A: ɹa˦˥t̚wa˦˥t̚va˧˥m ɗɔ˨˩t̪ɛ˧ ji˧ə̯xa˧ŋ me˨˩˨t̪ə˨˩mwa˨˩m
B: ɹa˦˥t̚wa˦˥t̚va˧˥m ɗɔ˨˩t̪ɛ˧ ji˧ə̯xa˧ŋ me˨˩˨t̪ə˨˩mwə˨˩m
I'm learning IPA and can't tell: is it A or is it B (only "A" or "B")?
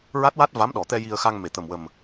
B